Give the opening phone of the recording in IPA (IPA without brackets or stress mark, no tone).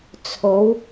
t͡sʰ